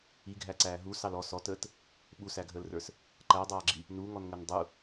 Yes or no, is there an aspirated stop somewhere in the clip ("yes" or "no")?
no